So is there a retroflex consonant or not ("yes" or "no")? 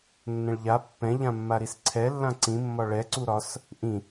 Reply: yes